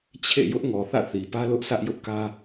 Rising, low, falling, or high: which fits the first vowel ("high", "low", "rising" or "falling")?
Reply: falling